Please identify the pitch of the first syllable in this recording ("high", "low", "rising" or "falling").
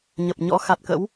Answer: low